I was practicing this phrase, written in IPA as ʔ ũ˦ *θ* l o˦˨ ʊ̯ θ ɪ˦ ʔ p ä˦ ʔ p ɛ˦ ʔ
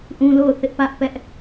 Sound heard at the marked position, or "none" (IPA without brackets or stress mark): none